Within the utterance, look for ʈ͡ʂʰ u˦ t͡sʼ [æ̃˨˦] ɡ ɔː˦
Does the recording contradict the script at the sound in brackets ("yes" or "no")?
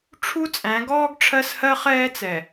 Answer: no